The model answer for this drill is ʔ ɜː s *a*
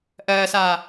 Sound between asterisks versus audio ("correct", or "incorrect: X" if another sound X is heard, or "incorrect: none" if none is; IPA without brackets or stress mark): incorrect: aː